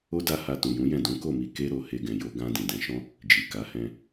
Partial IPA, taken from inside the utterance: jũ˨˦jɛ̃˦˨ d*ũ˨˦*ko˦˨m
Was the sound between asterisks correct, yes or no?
yes